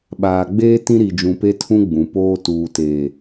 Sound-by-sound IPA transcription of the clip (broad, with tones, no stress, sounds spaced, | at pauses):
ɓ aː˨ ɡ͡b eː˦ t ĩ˦ ɾ i˨ d͡ʒ ũ˨ p e˦ tʰ ũ˦ ɡ͡b ũ˨ p oː˦ t uː˨ t eː˨